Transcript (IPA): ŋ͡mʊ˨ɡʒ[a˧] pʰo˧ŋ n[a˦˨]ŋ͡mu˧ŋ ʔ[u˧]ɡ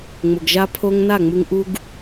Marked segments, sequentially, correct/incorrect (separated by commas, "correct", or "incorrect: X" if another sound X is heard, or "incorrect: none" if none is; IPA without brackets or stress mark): correct, correct, correct